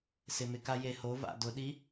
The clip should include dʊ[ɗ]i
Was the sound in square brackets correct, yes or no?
yes